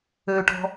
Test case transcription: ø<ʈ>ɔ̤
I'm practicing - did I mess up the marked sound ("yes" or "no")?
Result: no